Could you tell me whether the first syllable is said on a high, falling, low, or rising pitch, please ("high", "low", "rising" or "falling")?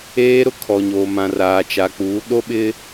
high